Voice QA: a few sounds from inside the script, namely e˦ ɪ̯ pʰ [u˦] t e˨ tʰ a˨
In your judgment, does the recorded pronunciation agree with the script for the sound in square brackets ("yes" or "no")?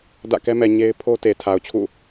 no